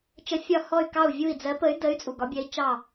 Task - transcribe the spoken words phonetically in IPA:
t͡ʃ ə˧˥ fʲ ɒ˦˨ h ɔ˦˨ y̯ k ɑ˦˨ u̯ vʲ u˦˨ i̯ d͡z ɜ˧˥ p ə˧˥ y̯ d ə˧˥ y̯ t͡sʼ u˨ ɡ ɒ˧˥ bʲ ɜ˧˥ i̯ t͡ʃ ɑ˦˨

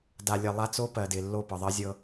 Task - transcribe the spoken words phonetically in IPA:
d a˨ lʲ ə˨ lˠ a˦ t͡s o˦ p ɜ˨ d ɪ˨ lː o˦˨ p ɤ˨ ðˤ ɜ˦ zʲ ɤ˦

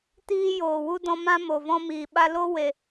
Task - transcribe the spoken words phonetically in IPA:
t iː˧ j oː˨ w u˧ d ɔ̃˧ m ã˦ m o˨ v ɔ̃˧ m iː˨ ɓ a˧ l o˦ w e˧

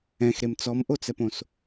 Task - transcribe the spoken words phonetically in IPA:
ɛ̃ x ɾ e m t͡s ɔ m ʔ o t͡s ɛ p õ s

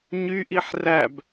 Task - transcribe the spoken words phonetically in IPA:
ɲ y ʔ i ħ r æ b

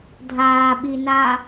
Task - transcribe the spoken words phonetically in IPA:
dʱ aː ɓ i n a

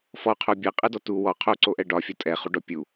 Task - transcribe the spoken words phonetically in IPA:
f ɔ qʰ o bʲ ɛ qʼ ɛ d ɔ t u w ɔ qʰ o ǀ o ʔ ɛ ɖ ɒ fʲ ɒ tʼ ɛ χ u ɖ ɔ pʲ u

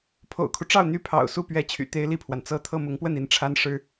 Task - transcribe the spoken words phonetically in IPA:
pʰ o̰˨˩ ʊ̯ kʰ u˦ ʈ͡ʂ ɑ˥˩ ʊ̯ n̪ y˥ pʰ ɑ̰˨˩ ʊ̯ s u˥˧ p ɥ ɛ˥˩ t͡ɕʰ y̰˨˩ t̪ e˥ ɪ̯ l i˥˩ pʰ w a˩ n t͡s ɤ˥ t̪ʰ ɤ˥˩ m ʊ˧˥ ŋ p w ə˥˩ n i˧˥ n ʈ͡ʂʰ a˥ n ʂ ɻ̩˥

